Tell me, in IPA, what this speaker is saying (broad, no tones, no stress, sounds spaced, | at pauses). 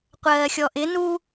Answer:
qʷ ɜː xʲ ɔ ʔ ɪ n u